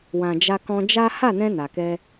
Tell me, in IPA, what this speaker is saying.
w ã˨ d͡ʒ a˧ k ɔ̃˧ d͡ʒ a˦ h a˦˨ n ɛ̃˧ n a˨ k ɛ˧

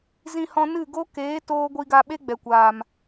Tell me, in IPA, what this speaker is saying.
z ĩ˧ h ɔ̃˧ n ɨ˦˨ ɡ o˦ k eː˨˦ t oː˦ ɡʷ i˧ ɡ a˧ ɓ e˦ ɡ͡b ɛ˨ kʷ aː˨ m

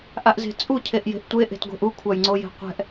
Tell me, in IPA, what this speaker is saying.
ʔ a ʔ z e̤ t͡sʼ u cʰ e ʔ j e̤ ʔ tʷ e ʔ e̤ t ɡʷ e̤ ʔ u kʷʰ a j ŋ͡ǀ o j e̤ qʷ ɛ̤ ʔ

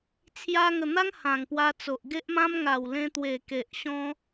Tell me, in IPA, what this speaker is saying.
t͡sʰ j a˧ ŋ ə˨˩ n̪ a˦ ŋ h ã˨˩ ŋ p w a˧ t͡s o˨ ʔ ɡ e˦ ʔ m ã˦ m ŋ a˨˩ w l ẽ˧ t̪ w e˨˩ k e˨ ʔ ɕ ɔ̃˦

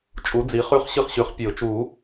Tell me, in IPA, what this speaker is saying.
t͡ʃʼ u˩˥ d͡z i˩˥ χ ʉ˧˥ χ ɕ ɨ˥˩ χ ɕ ʉ˨˩˦ χ pʲ e˨˩˦ ʊ̯ t͡ʃ u˨˩˦

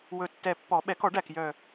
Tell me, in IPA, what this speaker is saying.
w ɵ˨˩ tː ɛ˨˩ pː ɔ˨˩˦ ɓ ɛ˨˩˦ k ɔ˨˩˦ ɖ æ˨˩ k j œ˨˩

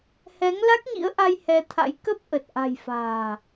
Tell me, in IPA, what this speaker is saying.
h ɛ˨˦ ŋ l a˦˥ k̚ ɲ ḭ˧˥ ə̯ ʔ a˧ j h ɛ˧ t̪ʰ a̰˧˥ j k ə˦˥ p̚ ʔ ə˨˩ t̚ ʔ a̤˨˩ j f a̤ː˨˩

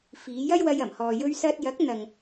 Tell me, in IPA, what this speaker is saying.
f iː˨˧ j ɐ˥ j w ɐ˧ j ɐ˨˩ m h ɔː˨ j ɵ˧ ɥ s ɐ˧ t̚ j ɐ˨˥ k̚ n̪ ɐ˨ ŋ

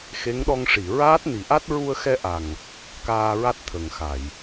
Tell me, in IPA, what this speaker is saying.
x e˧˥ ŋ ɗ ɔ˧ ŋ ʂ i˨˩˨ ɹ aː˦˥ t̚ n i˨˩˦ ʔ a˦˥ t̚ ɹ u˧ ə̯ x ɛ˧ ʔ a˨˩ ŋ | k aː˧ ɹ a˦˥ t̚ t̪ʰ ə˨˩ ŋ x a˨˩˨ j

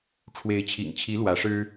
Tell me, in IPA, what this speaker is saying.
ʈ͡ʂʰ w e˧˥ ɪ̯ t͡ɕʰ ḭ˨˩ ŋ t͡ɕʰ i˧˥ l w ä˧˥ ʂ ɻ̩˥

